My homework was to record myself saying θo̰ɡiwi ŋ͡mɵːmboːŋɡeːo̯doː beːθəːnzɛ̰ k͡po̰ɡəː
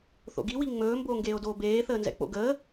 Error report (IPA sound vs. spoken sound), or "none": none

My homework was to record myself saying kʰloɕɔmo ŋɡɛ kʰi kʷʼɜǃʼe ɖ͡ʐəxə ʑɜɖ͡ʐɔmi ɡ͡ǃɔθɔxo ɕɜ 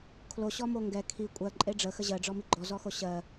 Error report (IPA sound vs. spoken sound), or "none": θ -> z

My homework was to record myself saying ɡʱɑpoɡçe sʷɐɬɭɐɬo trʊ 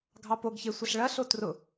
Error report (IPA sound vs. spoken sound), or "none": none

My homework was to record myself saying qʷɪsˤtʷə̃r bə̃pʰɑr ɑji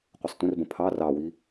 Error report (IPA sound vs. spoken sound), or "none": j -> w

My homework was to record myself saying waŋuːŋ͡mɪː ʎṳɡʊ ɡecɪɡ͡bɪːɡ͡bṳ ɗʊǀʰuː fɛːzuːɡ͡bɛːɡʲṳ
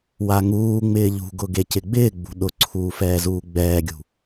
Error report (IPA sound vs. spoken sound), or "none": none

